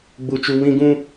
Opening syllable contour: high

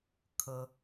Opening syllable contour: high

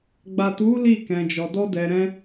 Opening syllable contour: low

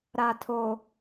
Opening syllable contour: low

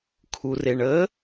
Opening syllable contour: low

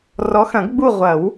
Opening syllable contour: rising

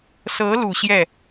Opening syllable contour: rising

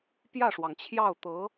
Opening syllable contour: falling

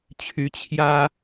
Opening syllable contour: rising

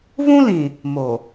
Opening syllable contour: high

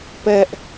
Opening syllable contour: high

